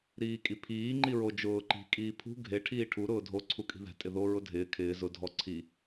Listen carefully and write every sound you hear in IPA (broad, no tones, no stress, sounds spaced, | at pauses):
ɾ iː kʼ i pʰ iː ŋ͡ǃ i ɹ o d͡ʒ ʊː ǃ i̤ kʼ iː pʰ ṳ ɡʱ e ʈʰ iː ʈʰ u ɾ ʊː dʱ o ǀʰ u kʼ i̤ ð ɛ̤ tʼ ɪ ð o ɹ ʊ dʱ ɪː kʰ ɪː z ʊ dʱ ɔ ǀʰ i